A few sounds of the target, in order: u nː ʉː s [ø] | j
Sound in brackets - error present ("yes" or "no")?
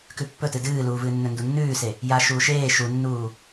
yes